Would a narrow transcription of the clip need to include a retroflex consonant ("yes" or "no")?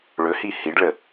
yes